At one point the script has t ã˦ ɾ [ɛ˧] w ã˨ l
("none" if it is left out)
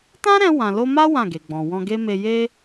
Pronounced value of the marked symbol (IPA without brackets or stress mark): ɛ̃˧